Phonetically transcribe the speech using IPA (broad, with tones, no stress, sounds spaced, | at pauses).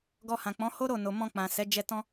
ɡ ɔ˧ h ã˨ k͡p ɔ̃˨˦ h o˦ ɾ o˦˨ n o˨ m ɔ̃˧ k͡p ã˨ s ɛ˨˦ d͡ʒ ɛ˧ t ɔ̃˦